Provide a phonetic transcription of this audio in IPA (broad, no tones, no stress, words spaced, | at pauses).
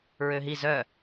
ɹøɦi zœ